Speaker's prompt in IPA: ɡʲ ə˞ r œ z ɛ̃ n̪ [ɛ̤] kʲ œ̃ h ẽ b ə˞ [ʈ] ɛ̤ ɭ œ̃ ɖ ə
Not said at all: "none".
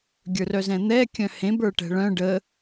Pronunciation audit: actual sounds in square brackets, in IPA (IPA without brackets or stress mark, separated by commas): ɛ, ʈ